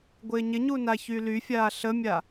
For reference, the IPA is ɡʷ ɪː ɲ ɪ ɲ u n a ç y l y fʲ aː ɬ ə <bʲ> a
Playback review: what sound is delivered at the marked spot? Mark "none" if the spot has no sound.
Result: mʲ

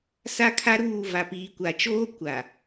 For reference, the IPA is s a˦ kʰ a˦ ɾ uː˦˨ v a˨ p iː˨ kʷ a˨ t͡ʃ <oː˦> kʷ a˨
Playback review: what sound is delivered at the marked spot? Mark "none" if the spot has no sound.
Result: oː˦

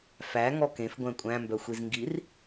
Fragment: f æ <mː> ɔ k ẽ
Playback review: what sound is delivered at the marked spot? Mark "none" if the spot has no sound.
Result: ŋ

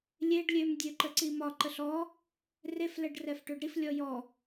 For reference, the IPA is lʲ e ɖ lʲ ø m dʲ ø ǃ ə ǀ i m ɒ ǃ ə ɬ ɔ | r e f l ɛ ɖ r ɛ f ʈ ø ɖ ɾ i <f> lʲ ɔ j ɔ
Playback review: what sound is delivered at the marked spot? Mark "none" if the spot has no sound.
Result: f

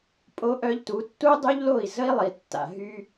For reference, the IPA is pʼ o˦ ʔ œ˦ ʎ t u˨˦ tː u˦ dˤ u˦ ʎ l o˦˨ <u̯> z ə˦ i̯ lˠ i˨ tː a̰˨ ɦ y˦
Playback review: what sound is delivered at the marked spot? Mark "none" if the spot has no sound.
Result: i̯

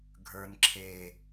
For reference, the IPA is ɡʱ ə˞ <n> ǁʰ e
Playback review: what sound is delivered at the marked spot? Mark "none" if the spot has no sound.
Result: n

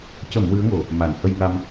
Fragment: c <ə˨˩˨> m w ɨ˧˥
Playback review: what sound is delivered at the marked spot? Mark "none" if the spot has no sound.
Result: ə˨˩˨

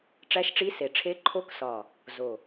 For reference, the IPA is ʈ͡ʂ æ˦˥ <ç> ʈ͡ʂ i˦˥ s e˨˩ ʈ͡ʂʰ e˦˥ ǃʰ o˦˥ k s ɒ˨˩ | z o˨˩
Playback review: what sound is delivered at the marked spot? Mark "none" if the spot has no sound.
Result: ʃ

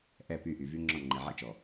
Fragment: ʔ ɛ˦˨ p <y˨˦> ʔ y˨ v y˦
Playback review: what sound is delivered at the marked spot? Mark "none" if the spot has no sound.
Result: y˦˨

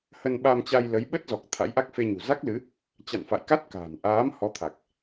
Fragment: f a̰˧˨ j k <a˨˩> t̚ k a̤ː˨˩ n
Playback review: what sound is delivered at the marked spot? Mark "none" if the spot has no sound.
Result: a˦˥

